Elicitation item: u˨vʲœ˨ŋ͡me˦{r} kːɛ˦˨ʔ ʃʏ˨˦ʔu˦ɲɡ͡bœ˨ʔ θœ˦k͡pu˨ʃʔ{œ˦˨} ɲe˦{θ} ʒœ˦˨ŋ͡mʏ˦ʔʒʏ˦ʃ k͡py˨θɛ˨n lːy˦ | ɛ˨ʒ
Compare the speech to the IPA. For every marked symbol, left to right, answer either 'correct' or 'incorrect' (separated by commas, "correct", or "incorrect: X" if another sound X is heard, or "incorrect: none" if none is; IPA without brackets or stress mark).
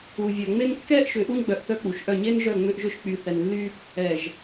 incorrect: n, correct, incorrect: n